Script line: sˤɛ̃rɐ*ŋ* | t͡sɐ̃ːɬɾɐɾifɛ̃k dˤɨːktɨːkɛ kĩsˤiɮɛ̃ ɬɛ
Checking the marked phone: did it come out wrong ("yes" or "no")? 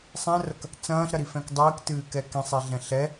yes